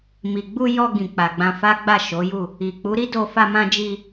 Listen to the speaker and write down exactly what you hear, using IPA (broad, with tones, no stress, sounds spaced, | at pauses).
m i˨ ɡ͡b u˧ j ɔ˧ ɡ ĩ˨ k͡p a˨ ɡ͡b ã˧ f a˦ ɡ͡b a˦˨ ʃ o˨˦ j u˦˨ | i˨ k͡p u˨˦ ɾ i˦ d o˧ f a˧ m ã˧ d͡ʒ i˧